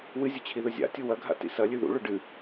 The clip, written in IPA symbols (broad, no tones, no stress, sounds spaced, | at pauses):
w ɨ zʲ ɵ t͡ɕʰ i ð ɵ zʲ a̰ tʲ u w ɐ ɡʱ a̰ t ḭ s ɐ lʲ ʉ ð ṵ ɭ ɵ ɖ ɨ